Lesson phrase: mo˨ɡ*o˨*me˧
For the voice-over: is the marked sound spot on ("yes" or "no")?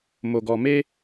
no